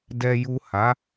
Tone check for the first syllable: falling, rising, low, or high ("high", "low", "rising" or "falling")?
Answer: low